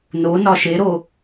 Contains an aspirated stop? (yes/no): no